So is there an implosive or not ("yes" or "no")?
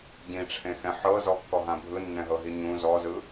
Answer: no